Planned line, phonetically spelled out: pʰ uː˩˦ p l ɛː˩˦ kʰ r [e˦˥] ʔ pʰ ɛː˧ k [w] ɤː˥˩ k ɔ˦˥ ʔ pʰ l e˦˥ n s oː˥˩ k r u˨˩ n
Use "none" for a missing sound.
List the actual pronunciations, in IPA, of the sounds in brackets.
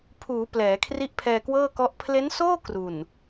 i˦˥, w

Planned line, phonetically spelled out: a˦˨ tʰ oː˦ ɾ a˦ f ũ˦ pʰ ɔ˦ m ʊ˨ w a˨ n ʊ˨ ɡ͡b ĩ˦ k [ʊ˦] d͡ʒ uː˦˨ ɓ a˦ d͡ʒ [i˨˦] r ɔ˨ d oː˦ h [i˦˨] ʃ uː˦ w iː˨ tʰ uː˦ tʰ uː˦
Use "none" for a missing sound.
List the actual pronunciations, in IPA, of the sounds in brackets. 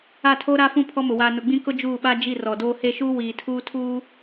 ʊ˦, i˦˨, e˦˨

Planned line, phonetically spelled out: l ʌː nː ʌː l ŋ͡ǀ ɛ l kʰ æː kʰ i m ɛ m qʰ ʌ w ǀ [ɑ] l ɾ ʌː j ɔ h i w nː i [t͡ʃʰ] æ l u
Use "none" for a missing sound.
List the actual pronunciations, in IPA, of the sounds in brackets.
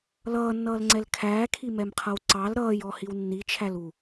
ɑ, t͡ʃʰ

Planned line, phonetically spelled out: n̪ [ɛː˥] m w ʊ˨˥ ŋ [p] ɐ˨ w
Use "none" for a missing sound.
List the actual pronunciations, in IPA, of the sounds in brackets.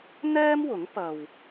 ɛː˥, p

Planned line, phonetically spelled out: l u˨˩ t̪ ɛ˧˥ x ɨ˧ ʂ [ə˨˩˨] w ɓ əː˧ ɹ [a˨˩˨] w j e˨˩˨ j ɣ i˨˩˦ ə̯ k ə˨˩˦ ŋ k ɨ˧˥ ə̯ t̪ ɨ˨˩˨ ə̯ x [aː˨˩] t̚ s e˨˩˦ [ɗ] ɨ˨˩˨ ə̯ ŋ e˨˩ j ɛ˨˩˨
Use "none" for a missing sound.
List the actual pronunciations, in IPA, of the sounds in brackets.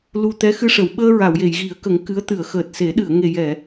ə˨˩˨, a˨˩˨, əː˨˩, ɗ

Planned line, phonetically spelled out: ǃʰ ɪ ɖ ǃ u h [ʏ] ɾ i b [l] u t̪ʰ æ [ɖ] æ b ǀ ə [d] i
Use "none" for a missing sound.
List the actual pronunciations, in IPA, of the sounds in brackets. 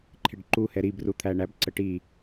ɛ, r, ɳ, ʈ

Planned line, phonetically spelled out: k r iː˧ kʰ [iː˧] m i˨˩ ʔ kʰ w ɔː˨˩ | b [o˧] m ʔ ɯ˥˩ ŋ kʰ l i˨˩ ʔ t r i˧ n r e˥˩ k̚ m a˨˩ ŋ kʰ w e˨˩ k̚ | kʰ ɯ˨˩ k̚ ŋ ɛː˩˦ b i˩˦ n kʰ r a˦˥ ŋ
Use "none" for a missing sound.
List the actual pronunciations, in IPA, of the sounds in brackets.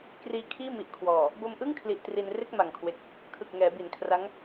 iː˥˩, o˧

